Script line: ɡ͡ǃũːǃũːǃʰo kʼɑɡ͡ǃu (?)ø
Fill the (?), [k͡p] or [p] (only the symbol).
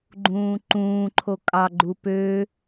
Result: p